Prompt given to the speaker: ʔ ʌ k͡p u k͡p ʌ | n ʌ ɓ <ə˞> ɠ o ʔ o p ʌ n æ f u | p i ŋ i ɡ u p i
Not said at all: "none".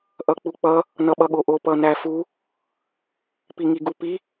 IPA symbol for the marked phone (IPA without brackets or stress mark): ʌ